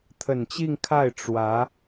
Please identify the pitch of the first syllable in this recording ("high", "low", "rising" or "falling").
low